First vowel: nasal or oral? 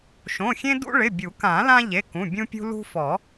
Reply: nasal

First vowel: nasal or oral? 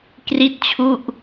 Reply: oral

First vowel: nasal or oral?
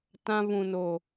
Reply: nasal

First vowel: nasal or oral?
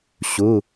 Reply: oral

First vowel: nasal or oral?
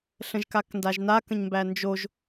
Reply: nasal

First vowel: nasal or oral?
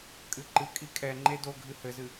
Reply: oral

